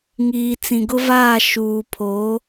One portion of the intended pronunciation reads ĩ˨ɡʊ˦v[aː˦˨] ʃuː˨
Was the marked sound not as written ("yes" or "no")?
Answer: no